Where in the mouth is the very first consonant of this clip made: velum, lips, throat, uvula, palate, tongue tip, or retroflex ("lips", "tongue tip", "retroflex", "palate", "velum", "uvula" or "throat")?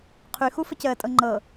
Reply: uvula